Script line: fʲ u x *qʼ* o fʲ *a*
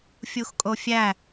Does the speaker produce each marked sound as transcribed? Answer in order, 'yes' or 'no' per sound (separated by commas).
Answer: no, no